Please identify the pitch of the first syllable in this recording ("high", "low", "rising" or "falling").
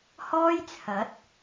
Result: high